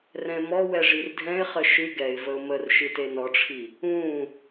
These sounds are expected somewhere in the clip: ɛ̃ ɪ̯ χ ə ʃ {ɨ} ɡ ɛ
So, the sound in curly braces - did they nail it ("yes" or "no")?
yes